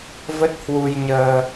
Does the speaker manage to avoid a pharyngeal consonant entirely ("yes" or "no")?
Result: yes